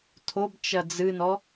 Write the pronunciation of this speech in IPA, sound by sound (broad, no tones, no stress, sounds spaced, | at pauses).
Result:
tʰ o b t͡ʃ ɐ d͡z ɨ n ɔ